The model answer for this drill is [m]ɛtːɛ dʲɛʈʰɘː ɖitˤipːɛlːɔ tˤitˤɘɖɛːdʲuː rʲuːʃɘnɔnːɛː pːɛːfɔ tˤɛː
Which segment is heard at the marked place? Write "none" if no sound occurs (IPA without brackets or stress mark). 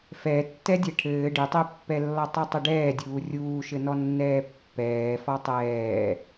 f